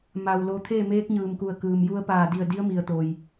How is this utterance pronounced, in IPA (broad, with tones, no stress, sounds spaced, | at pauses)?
m a˩ w l o˩˧ t̪ʰ eː˥˨ m eː˧˥ k̚ ɲ ɯː˩ m k u˧˩ ə̯ k ɯː˩ m j u˧ ə̯ p aː˧˩ d i˧˩ ə̯ d i˧˥ ə̯ m i˩ ə̯ t̪ o˩ j